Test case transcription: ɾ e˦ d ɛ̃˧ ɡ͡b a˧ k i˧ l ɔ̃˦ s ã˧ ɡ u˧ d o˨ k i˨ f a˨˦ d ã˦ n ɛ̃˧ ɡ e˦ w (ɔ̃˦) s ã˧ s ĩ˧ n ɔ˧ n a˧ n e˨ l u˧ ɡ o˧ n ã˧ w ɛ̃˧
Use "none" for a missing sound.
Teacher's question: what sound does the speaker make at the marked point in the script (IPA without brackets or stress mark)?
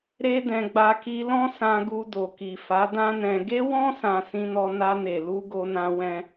ɔ̃˦